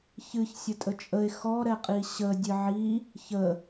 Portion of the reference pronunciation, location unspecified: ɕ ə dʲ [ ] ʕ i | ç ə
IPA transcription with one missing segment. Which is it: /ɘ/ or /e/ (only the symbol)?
ɘ